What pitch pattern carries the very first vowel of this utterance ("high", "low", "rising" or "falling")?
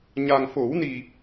low